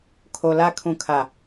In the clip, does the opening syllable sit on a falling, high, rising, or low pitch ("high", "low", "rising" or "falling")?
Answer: low